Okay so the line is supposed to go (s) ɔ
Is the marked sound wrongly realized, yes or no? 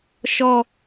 yes